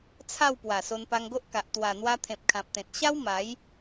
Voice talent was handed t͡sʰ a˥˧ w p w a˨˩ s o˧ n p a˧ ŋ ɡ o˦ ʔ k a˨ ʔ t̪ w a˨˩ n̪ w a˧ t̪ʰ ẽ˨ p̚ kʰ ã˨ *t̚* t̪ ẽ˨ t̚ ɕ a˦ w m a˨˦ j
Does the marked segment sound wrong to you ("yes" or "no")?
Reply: yes